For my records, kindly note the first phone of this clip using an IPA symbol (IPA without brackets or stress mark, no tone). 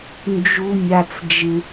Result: n